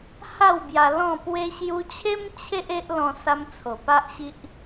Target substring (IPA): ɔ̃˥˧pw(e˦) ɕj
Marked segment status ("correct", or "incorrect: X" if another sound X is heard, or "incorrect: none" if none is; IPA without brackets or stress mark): correct